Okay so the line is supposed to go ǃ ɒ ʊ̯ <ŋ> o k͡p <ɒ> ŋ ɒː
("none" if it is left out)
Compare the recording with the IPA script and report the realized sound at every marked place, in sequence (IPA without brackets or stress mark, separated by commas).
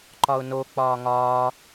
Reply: n, ɒː